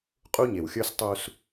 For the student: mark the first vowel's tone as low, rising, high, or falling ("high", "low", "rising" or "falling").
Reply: high